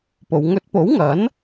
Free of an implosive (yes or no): yes